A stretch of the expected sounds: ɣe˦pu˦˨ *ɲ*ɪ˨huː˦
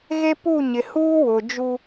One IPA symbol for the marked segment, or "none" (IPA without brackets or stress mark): ɲ